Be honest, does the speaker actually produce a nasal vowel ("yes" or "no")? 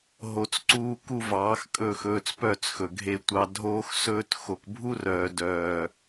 no